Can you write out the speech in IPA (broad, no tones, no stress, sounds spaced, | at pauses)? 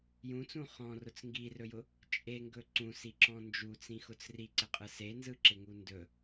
j ũ t͡s ũ χ ɔ̃ r ʊ t͡s ŋ ɡ i r ɵ j ʊ | t͡ʃʼ e ŋ ɡ ɵ ǀ ũ s i ǁ ɔ̃ n d͡ʒ u t͡s ĩ x ʊ t͡s r i ǀ ɪ qʼ ɯ s e n z ɯ ǁ ɪ ŋ u n d ɵ